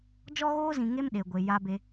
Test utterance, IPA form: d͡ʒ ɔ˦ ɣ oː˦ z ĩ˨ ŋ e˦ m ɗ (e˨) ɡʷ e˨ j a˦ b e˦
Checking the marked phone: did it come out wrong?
no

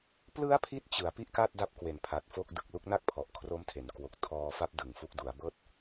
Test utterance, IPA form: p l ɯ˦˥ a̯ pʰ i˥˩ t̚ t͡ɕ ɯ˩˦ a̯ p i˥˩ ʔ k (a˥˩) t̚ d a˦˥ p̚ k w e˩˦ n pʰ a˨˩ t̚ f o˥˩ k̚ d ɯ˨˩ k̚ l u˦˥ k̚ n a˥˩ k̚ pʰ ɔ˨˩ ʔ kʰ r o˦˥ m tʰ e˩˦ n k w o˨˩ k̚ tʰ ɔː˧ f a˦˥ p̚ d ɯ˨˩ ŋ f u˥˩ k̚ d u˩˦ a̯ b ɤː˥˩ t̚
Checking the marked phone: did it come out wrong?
no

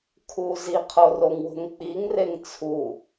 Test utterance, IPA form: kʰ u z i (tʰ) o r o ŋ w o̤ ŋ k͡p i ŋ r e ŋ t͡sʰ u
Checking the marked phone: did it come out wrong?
yes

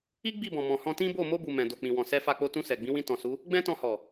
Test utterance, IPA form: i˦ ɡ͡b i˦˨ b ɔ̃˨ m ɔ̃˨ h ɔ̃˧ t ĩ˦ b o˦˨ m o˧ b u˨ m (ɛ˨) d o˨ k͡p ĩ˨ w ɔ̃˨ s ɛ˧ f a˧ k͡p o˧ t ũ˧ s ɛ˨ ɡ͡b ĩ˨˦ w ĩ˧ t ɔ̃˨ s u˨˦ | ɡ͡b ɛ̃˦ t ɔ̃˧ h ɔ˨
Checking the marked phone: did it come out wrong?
yes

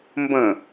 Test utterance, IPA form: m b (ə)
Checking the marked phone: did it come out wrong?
yes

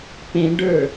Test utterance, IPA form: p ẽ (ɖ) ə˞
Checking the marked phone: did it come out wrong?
no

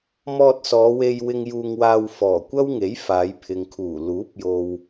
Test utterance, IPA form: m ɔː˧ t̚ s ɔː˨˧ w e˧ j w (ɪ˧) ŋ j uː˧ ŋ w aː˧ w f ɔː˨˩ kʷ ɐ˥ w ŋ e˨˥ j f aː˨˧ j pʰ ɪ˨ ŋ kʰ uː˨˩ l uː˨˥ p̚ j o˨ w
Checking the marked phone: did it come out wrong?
no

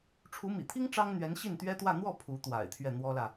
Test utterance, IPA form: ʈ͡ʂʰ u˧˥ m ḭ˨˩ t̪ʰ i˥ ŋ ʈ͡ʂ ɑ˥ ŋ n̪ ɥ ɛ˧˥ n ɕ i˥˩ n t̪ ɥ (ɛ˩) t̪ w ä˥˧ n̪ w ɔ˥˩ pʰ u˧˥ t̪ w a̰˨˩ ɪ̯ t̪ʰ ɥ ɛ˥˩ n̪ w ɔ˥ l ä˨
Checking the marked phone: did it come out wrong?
yes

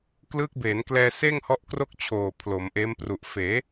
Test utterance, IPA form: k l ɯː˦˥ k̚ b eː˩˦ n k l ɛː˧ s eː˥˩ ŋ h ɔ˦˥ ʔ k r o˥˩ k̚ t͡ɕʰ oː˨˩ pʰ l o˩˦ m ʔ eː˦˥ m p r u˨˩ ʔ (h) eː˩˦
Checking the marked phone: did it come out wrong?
yes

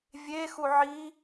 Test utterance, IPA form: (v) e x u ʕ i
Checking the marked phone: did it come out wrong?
yes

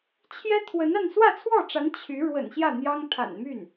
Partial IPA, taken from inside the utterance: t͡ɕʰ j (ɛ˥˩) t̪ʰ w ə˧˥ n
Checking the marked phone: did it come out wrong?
yes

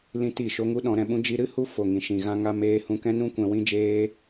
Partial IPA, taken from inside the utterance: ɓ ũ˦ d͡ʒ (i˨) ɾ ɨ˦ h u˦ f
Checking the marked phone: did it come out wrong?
yes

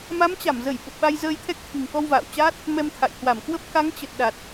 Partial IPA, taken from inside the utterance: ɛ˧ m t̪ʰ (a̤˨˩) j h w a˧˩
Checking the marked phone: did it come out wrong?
yes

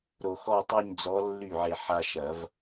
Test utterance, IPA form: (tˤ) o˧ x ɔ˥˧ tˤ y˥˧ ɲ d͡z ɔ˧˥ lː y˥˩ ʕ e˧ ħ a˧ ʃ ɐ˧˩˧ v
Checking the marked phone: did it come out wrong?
yes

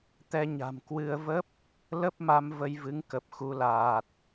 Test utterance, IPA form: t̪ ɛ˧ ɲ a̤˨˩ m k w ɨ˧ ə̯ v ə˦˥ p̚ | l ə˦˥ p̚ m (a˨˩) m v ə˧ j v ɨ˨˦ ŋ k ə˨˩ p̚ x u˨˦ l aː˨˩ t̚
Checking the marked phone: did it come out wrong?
yes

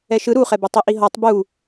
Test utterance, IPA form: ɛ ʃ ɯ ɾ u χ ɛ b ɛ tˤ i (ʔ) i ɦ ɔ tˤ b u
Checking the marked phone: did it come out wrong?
no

